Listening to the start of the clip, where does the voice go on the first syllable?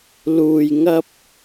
high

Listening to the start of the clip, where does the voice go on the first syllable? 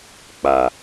low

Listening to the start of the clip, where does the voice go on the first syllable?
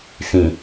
low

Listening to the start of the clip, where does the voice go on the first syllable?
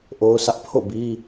high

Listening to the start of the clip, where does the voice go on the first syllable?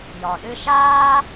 low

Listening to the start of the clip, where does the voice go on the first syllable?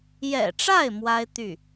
low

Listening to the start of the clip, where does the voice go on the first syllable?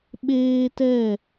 high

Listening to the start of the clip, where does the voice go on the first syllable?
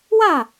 falling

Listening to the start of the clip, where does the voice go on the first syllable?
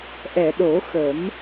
low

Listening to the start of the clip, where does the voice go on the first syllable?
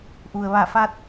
low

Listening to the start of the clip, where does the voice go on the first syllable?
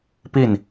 falling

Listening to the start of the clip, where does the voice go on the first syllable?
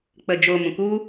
low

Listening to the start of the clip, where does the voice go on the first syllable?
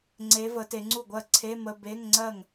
rising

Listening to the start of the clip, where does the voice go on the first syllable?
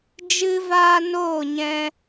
high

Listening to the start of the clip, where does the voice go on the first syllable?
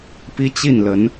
high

